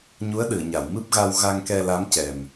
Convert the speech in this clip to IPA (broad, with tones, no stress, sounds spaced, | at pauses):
ɲ u˧˥ ə̯ ɗ ɨ˨˩˨ ə̯ ɲ a˨˩˨ w m ɨ˦˥ p̚ ɣ a˧ w ɣ a˧ ŋ k ɛ˧ l a˧˥ m c ɛ˨˩ m